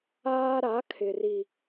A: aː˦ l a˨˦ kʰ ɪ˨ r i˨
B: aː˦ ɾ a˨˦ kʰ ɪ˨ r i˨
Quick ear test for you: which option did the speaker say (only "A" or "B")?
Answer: B